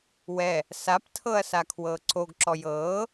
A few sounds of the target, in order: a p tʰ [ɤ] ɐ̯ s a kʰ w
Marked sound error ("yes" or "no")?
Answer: no